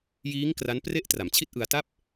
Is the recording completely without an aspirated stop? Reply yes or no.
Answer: no